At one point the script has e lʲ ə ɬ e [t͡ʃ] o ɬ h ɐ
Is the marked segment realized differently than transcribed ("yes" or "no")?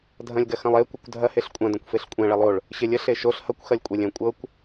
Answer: yes